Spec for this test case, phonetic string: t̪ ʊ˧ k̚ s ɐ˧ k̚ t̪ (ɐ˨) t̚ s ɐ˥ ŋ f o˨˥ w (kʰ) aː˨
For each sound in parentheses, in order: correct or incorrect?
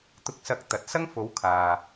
correct, correct

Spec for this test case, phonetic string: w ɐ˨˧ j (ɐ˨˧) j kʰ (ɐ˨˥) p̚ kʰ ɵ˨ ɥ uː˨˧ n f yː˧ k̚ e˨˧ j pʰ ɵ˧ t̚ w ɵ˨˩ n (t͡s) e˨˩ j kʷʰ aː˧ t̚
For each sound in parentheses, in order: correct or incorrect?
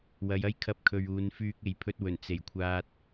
incorrect, incorrect, correct

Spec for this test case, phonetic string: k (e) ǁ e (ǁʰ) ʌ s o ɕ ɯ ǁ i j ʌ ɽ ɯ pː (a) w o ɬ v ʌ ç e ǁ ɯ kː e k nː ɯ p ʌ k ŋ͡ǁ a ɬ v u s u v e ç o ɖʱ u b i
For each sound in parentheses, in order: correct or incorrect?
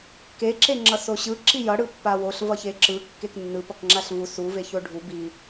correct, incorrect, correct

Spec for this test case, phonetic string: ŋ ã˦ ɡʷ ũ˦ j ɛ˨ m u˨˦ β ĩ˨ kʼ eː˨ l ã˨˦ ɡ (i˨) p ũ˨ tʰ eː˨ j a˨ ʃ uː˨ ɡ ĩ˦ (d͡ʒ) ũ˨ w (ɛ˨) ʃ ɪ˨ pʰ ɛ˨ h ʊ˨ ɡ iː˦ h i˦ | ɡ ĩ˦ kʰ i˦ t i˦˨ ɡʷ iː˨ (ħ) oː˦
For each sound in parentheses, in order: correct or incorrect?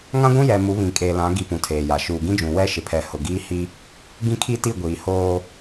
incorrect, correct, incorrect, incorrect

